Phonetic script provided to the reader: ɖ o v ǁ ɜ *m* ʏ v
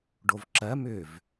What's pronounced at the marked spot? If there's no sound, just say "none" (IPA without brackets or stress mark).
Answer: m